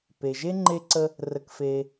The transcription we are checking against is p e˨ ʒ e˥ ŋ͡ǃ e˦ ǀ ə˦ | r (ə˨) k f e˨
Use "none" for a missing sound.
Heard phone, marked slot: ə˨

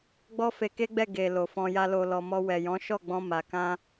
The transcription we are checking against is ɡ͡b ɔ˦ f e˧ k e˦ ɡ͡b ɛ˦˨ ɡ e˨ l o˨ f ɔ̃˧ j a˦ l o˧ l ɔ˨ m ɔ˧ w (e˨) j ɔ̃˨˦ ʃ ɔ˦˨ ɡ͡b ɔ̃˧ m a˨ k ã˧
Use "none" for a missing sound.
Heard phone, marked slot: ɛ˨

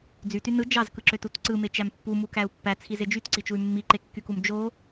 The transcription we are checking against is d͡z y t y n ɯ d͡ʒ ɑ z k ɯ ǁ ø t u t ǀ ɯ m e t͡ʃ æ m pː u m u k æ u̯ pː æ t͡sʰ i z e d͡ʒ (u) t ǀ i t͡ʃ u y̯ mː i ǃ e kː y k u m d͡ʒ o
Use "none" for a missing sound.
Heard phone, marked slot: y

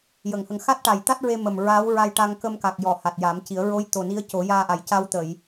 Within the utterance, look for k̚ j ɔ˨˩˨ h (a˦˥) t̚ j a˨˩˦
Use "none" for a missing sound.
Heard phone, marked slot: a˨˩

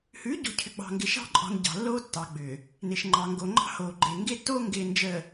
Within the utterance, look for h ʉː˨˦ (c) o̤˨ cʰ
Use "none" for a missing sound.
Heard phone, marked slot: ɟ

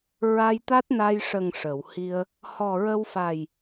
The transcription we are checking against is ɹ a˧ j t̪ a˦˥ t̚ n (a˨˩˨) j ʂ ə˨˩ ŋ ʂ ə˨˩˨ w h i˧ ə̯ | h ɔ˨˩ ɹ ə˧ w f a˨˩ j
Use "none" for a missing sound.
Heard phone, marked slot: a˧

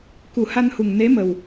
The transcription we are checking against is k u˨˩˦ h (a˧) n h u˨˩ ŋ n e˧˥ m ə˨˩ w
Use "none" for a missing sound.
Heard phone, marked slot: a˧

